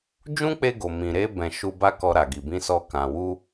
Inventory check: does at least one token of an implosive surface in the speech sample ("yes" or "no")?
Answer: no